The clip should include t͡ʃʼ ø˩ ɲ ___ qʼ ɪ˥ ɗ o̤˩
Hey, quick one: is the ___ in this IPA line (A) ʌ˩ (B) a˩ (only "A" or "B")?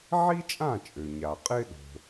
B